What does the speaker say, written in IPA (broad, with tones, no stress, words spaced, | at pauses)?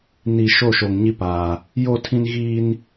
ni˨ ʃo˦˨ʃo˨ŋɲi˦paː˨ | jo˦˨tʰĩ˦n ɣiː˦n